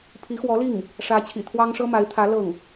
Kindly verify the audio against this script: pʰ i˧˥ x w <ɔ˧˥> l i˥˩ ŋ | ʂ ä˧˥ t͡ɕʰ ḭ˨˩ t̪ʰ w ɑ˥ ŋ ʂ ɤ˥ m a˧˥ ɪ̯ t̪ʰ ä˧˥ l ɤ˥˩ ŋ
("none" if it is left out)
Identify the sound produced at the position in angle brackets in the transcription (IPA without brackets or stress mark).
ɔ˧˥